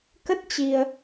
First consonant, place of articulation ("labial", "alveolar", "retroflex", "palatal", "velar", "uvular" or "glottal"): velar